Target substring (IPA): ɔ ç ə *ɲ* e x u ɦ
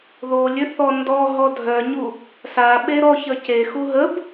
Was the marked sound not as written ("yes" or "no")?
yes